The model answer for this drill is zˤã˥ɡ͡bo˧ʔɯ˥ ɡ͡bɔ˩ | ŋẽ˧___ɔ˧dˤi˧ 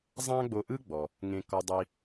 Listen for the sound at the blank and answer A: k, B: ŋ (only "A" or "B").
A